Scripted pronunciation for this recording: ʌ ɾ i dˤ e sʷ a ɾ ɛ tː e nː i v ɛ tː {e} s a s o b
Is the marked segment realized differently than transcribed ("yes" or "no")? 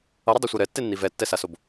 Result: yes